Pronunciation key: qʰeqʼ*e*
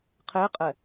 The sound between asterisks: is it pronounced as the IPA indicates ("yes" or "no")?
no